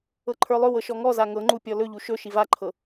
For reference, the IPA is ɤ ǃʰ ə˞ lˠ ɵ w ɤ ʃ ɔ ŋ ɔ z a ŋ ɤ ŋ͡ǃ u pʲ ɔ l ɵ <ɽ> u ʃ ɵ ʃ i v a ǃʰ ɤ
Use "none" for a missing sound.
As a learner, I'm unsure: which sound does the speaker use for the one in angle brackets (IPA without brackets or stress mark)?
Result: ʎ